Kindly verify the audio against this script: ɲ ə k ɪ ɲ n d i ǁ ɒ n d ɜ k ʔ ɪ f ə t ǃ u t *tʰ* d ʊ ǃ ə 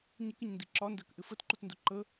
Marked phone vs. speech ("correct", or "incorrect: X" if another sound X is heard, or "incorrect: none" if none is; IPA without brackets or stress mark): incorrect: n